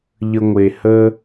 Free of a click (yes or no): yes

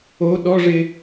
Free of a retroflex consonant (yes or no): no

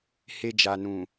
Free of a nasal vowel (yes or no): no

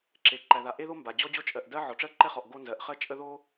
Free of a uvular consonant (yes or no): no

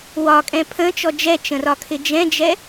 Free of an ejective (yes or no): no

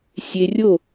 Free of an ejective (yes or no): yes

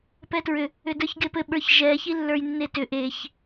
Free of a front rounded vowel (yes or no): no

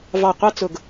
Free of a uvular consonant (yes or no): no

